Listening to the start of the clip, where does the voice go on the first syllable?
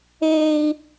high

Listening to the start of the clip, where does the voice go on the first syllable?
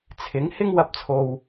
rising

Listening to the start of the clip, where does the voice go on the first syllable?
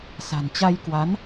low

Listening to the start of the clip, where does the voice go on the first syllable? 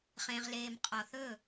low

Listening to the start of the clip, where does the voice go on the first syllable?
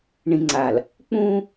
low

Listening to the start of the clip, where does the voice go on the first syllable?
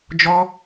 high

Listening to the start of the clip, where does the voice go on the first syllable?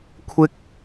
high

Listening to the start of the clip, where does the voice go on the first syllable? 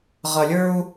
low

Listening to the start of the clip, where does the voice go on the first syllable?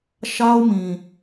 high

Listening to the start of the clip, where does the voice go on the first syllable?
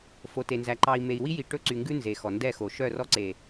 low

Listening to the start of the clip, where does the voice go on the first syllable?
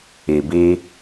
low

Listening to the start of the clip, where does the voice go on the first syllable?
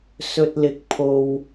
low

